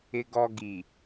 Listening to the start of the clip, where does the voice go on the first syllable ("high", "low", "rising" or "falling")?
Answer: low